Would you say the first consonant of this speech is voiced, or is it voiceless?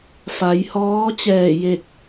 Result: voiceless